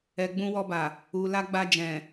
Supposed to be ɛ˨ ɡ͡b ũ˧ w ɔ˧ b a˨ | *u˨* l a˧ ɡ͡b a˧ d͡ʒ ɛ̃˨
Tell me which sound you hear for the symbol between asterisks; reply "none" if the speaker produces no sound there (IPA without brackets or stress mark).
u˨